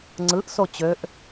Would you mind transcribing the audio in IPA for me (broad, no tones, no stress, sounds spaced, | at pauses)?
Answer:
ŋ͡ǀ ɯ ʔ s o t͡ɕ ø ʔ